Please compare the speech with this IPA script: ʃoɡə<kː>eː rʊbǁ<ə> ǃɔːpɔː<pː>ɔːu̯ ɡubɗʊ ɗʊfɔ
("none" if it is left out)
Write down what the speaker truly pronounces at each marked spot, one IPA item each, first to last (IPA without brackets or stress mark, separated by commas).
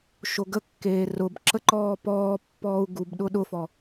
kː, ə, pː